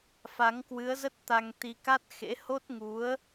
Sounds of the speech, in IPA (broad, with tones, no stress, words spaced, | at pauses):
fa˨˦ŋkwɨ˨˦ə̯zə˦˥t̚ t̪a˧ŋt̪i˧ka˦˥t̚ xḛ˧˥ho˦˥t̚ŋu˨˦ə̯